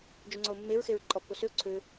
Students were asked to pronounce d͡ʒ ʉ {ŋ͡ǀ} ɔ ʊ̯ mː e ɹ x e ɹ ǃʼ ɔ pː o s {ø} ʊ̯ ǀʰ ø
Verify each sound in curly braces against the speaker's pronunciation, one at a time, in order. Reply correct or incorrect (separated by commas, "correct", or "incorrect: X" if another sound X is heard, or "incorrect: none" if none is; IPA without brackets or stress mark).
correct, correct